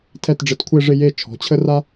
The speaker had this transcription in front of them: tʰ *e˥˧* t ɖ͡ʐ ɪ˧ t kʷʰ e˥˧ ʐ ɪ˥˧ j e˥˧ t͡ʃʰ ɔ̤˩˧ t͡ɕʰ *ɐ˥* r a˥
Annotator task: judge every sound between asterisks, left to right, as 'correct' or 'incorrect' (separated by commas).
incorrect, incorrect